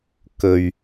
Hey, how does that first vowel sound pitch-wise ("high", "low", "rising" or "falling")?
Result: low